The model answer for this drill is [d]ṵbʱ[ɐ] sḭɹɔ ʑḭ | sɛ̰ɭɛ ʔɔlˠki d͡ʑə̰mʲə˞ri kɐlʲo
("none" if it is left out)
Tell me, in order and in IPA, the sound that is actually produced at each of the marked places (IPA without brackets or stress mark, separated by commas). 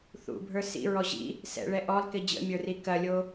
θ, ə˞